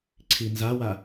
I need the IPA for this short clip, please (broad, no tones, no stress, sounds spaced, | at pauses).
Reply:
ǀʰ i n z a w a